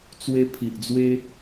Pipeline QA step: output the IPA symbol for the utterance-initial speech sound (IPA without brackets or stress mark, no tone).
t͡s